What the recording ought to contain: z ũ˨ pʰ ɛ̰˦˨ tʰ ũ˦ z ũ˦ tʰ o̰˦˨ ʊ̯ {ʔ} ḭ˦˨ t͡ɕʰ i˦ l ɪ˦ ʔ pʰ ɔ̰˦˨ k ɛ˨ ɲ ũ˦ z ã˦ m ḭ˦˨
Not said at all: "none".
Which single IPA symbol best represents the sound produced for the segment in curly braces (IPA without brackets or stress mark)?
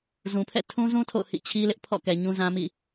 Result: h